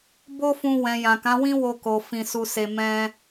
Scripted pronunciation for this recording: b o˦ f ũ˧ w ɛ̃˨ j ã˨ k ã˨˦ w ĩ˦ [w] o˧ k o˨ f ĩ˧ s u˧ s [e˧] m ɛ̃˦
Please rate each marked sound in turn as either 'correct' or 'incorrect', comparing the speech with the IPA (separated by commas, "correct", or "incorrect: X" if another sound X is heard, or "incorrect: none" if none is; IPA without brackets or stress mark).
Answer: correct, correct